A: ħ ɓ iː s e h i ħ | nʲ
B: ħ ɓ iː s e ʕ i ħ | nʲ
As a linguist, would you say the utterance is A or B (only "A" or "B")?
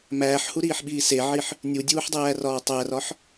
B